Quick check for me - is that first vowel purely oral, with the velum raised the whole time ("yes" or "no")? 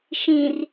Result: no